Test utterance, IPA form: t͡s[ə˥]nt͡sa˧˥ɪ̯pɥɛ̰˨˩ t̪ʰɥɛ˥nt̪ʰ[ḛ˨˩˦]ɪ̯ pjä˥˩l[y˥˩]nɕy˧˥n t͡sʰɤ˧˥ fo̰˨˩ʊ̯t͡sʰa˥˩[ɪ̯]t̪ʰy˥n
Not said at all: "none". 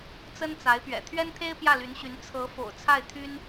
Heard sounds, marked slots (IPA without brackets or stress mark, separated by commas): ə˥, e˥, y˧˥, ɪ̯